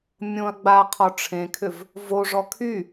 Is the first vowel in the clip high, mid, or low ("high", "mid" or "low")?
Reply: mid